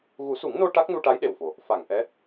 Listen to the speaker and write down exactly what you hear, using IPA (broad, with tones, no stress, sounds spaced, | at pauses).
ɣ u˨˩˦ s u˨˩˦ ŋ n o˧ ʈ a˦˥ k̚ n u˧ ʈ a˧˥ j ɗ e˨˩ w f o˨˩ | f a˨˩˨ ŋ ʔ ɛ˧˥